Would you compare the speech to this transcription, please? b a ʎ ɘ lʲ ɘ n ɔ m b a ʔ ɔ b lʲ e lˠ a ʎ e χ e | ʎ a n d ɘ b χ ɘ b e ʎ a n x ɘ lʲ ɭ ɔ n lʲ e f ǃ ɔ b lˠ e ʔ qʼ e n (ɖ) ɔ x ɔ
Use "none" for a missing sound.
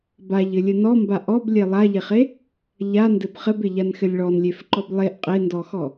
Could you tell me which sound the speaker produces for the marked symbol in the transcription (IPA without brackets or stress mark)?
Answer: d